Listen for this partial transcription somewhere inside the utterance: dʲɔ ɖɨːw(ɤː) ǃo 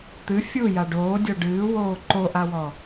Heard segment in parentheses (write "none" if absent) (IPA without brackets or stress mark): oː